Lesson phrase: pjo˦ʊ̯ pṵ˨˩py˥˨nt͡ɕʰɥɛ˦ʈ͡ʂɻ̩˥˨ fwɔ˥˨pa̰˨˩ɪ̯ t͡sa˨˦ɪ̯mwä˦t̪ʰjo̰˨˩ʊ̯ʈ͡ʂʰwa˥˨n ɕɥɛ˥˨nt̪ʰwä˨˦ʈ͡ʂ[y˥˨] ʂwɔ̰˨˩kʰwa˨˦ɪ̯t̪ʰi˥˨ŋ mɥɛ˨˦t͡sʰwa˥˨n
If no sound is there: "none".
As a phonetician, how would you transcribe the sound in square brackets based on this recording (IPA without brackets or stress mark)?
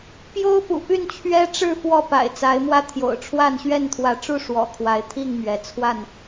u˥˨